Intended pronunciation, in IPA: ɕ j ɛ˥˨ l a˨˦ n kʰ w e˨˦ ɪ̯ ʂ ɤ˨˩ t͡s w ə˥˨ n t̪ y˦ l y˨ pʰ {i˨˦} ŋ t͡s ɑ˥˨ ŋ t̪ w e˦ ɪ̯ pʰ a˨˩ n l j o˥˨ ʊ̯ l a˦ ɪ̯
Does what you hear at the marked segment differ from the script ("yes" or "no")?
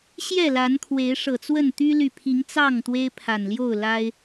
no